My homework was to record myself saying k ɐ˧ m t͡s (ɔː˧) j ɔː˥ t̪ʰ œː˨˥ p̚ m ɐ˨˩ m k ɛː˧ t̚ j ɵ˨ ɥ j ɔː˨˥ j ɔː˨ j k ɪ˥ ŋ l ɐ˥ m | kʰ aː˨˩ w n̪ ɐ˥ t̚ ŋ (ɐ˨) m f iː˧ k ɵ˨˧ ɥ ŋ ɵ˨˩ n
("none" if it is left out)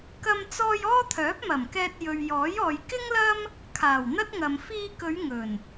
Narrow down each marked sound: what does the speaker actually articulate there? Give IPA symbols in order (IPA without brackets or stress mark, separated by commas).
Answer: ɔː˧, ɐ˨